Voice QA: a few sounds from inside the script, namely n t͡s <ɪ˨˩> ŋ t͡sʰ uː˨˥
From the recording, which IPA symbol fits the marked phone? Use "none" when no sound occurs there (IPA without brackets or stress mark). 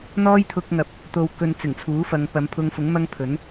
ɪ˨˩